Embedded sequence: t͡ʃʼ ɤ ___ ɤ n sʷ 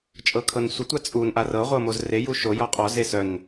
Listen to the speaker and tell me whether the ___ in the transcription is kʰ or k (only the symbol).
kʰ